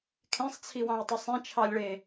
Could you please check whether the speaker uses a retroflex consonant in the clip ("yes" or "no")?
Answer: yes